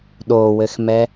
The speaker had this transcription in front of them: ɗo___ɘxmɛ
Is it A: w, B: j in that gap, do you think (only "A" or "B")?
A